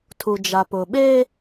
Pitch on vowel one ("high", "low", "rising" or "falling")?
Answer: low